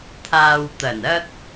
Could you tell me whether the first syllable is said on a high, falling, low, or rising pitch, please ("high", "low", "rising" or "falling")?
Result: low